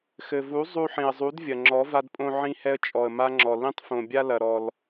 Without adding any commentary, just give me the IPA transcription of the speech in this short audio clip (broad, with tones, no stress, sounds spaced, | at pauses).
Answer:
x ɘ˨ v u˨˦ zˤ u˧ ħ ĩ˨ ə̯ zˤ u˨˦ d vʲ ɐ˨ ŋ͡ǁ ɔ˨˦ v a˧ d pʼ õ˧ ʕ ĩ˧ h ɛ˧ ə̯ t͡ʃʼ ɔ˨ ə̯ m a˦ ŋ͡ǁ ɔ˨ l ĩ˧ tˤ f õ˨ bʲ a˧ l ɐ˨ ɾ ɔ˨ l